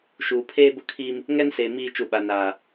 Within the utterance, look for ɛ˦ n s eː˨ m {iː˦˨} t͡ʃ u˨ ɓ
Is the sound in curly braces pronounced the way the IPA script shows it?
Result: yes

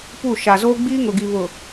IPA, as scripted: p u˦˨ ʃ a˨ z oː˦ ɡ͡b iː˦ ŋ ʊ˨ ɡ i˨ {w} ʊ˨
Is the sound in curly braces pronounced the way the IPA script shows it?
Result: no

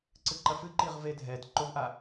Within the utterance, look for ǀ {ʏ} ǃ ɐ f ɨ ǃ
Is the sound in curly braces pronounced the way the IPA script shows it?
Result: no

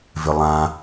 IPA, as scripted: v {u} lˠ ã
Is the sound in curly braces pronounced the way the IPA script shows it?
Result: no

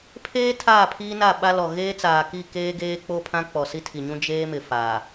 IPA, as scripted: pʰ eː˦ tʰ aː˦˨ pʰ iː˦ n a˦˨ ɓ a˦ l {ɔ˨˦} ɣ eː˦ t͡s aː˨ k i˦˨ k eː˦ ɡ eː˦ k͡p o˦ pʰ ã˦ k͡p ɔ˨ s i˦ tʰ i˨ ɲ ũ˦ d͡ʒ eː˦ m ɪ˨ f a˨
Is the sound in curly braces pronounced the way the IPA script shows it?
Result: no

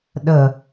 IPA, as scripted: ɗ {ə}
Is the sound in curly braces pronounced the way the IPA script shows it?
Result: yes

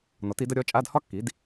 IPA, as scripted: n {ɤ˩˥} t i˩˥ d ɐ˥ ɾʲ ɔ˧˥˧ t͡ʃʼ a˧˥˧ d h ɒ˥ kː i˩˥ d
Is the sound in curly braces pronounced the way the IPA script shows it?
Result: no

